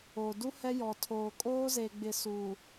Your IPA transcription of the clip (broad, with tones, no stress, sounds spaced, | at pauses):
o˨ d u˦ h ɛ˦ j ɔ˨ tʰ oː˨ kʼ oː˦ z e˨ ɡ͡b ɪ˨ s u˨